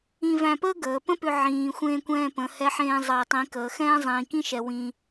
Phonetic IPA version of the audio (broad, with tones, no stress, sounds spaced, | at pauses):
ĩ˧ v æ̃˧ p əː˥ ɡ əː˩˧ p ə̃˥ p ʏ˧ ʕ ĩː˩ xʷ ẽː˧ kʷ ɛ̃ː˧ p ə̃˩˧ h ɛ˧˥ ħ ẽː˧ zˤ əː˩ tˤ ĩ˩˧ k əː˩˧ x ɛ̃ː˥ zˤ ĩː˩ k ĩ˥ ʃ ɛ˩ w ĩ˧